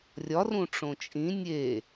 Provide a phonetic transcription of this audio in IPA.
rʲɒ rũʈ͡ʂõt͡ʃʼĩ nʲe

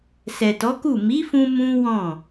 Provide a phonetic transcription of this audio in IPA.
sɛ˨tɔ˨˦ku˦˨ mi˨˦fũ˧ mũ˦wɔ̃˦˨

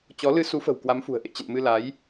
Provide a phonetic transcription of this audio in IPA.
t͡ɕɔ˨˦ lɨ˧su˨˦fə̤˨˩w kwa˨˦mfṳ˨˩ə̯ ʔḛ˧˨ t͡ɕə̰˧˨nmɨ˧ la˨˦j

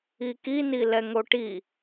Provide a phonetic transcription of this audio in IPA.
iki nilɛŋoʈi

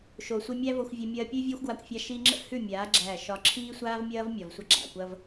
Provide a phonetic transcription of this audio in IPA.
ʃo˨sʷi˧mʲæ˦vo˧xʷ vʲɐ˧mʲɐː˧pʲʉ˦ vʲɐː˦xʷɡwa˧kʷfʲa˧ ʃi˧ŋ͡ǁə̰˦ hʉ˦˨ mʲaː˨˦ ɡ͡ǁæ˦˨ʃɒ˦ ǁʰiː˦sʷaː˦vmʲɐː˦v mʲɒ˨vsʷɐ˦ ɡ͡ǁa̰˨kʷɐ˦v

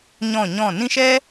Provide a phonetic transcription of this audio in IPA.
ɲɔ̃˦˨ɲɔ̃˦˨ nĩ˦ʃɛ˦

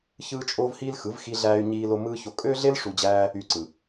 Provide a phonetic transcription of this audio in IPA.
çɯː˦t͡ʃʼoː˦vhiː˦lxɯ˨˦v xi˧ɮæː˧y̯ɲiː˧lo˧ mɯː˦ço˧ kʼø˦ɮe˦l ʂu˧d͡ʑæː˦ | y˧ǀɯ˨

